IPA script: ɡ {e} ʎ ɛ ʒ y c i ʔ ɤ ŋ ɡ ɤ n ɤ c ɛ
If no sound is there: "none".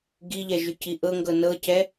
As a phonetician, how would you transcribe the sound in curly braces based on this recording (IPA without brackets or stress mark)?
i